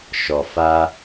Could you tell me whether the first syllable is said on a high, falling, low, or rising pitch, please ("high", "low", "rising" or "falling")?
low